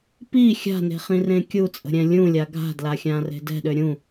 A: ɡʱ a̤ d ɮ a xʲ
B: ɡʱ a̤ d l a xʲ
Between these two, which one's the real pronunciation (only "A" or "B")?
B